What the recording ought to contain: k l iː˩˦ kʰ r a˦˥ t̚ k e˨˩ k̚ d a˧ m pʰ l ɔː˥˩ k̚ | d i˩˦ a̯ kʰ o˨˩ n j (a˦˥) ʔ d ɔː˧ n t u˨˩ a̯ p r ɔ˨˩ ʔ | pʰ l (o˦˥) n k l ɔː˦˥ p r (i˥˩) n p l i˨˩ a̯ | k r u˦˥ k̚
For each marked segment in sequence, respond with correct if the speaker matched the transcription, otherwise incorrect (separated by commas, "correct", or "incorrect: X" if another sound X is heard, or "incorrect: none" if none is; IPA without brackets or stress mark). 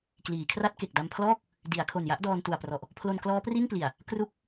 correct, incorrect: o˧, correct